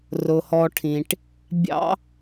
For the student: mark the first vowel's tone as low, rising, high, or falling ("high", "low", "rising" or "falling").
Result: low